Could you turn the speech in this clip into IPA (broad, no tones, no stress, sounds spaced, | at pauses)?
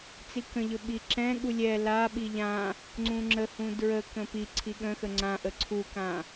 t͡s i k ə̃ ʎ ɵ ɓ i ǁ ɛ̃ ɠ u lʲ ɛ l a ɓ i ʎ ã | ŋ͡ǀ ũ ŋ͡ǁ ə h ũ d ɹ ə k ə̃ p i ǀʰ i ɠ ə̃ x ə ŋ͡ǀ ã ʔ ə ǀʰ u k ã